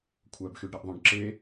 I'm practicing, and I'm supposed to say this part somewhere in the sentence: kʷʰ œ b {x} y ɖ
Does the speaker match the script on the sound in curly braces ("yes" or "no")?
yes